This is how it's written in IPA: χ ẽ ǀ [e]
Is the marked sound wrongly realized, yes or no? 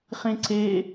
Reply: no